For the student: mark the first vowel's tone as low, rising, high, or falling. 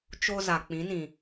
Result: high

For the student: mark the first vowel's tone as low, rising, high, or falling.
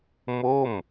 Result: falling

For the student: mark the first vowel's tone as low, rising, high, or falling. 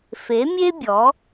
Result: rising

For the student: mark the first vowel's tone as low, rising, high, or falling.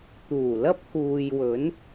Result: low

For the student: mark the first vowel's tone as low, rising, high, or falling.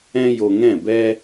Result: high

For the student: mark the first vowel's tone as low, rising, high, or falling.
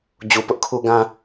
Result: low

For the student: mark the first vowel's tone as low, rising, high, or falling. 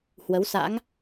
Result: rising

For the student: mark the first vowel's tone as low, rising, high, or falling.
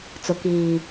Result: low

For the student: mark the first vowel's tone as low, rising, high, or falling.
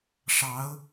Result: rising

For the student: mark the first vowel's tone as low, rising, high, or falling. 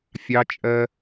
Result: high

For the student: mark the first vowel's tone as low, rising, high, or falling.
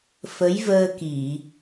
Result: rising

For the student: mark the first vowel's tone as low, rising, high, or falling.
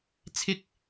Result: high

